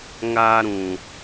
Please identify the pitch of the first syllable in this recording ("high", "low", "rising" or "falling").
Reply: high